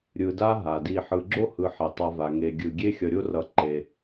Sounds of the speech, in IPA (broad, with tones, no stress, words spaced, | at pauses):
ɾʲɯ˨da˦ ɦa˩di˨ ħɯ˨ɡ͡ǁo˥hɯ˨ ħe˩tˤa˨va˩ ŋe˩ɡʲɯ˩ ɡʲe˦xʲʌ˨ɾʲo˦rʌ˨ ǃe˩